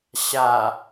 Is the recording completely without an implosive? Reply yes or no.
yes